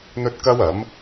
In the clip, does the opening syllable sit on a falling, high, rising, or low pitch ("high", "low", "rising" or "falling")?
high